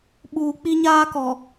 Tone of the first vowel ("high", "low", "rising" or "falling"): low